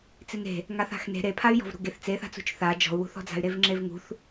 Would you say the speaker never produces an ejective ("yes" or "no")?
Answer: yes